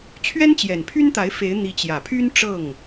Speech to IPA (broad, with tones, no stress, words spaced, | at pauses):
t͡ɕʰɥɛ˥nt͡ɕjɛ˨˩npʰy˥nt̪a˧˥ɪ̯ fe˧˥ɪ̯n̪i˧˥ t͡ɕjä˨˩pʰy˥n ʈ͡ʂɤ˥˩ŋ